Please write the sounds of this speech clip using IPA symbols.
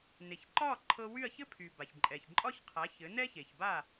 n e˩ ç ǃ ɒ˥˩ ǃʰ ɤ˧ w y˥˩ ɐ̯ ç ɘ˥ pʰ y˩ b a˩ ç ǃʼ ɛ˩ ç ǃʼ ɒ˥ ç qʰ a˩˥ ç ɘ˩˥ n ɛ˥ ç e˩ ç b a˥˩

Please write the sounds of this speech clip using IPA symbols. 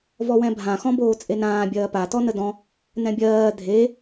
v ɔ w ɛ̃ bʱ ã x ɔ̃ b oː t͡sʼ e n ãː bʲ ɜː p a t ɔ n ə d ɔ̃ | n ɛ̃ bʲ ɜː dʱ e

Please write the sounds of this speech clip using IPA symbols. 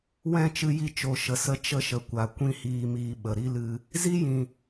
w ɛ̃˦˨ t͡ʃ ɨ˧ j i˧ t͡ʃ o˨˦ ʃ ə˧ s ə˦ t͡ʃ ə˧ ʃ ə˨ kʷ a˨ kʷ ĩ˦ h iː˧ m iː˧ ɓ ə˨ ɾ i˦ l ɨ˧ | z i˦ j ĩ˨

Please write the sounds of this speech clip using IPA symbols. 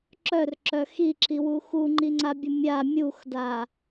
ǁ œ r ǁ œ x i ǁ i w u x u ŋ͡ǃ i ŋ͡ǀ a bʲ ə mʲ a mʲ u x d a

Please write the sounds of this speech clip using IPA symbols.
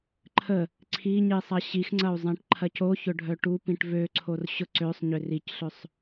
ǃʰ ə | ǀʰ i ɲ i sˤ ɐ ɕ i x ŋ͡ǀ ɐ u̯ zˤ ẽ ʈ ǃʰ ɐ c o ç ʊ ɖʱ œ ʈ u p ĩ ʈ v ø ǀʰ o r ɕ ʊ ǀ ø sˤ ɲ ʏ r i c ɬ ø sˤ

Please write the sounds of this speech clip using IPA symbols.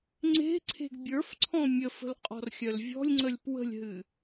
ŋ͡ǀ e̤ ǀʰ e̤ ɡ bʲ ə˞ f ǀʰ ɔ̃ mʲ ə f ə̤ l qʼ ɔ̤ r xʲ œ l vʲ ɔ̤ lʲ ŋ͡ǀ ə lʲ p w ə̤ lʲ ɦ ɨ

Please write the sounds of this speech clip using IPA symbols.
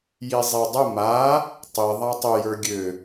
j i zˤ i dˤ ə m a | tˤ i ðˤ a tˤ ʏ j ə˞ ɡʲ ø

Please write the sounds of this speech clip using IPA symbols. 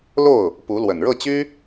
l o˥˩ ʊ̯ | p u˧˥ l w ə˨˩ n ɻ ɤ˥˩ t͡ɕ y˥

